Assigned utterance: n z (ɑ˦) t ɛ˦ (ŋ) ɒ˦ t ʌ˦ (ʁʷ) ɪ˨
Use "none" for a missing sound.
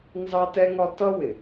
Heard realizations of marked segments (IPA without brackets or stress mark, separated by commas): ɑ˦, ŋ, w